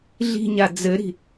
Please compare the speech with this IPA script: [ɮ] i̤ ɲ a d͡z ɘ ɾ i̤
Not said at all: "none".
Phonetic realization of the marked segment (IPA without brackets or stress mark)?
ɮ